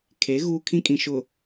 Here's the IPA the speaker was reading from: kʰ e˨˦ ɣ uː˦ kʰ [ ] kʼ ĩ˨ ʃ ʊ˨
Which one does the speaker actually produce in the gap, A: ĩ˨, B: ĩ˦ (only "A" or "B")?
B